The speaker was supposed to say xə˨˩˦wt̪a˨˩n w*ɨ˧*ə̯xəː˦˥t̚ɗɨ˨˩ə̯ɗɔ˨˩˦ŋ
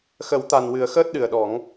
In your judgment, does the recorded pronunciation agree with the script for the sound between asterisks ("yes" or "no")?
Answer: no